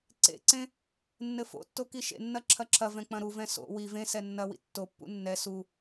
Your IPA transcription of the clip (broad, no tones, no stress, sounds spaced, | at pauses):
ǀ ḛ ǀ ẽ | nː ɘ f o̰ tː o k i ʃ ḛ nː ɐ ǁʰ ɐ ǁʰ ɐ v ɛ̃ k͡p ɐ̃ ɾ u v ɛ̃ s o̰ w i v ẽ s ɛ nː ɐ w ḭ tː o pː ṵ nː ɛ s u